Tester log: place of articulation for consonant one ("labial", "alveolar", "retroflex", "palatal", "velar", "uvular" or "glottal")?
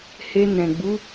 glottal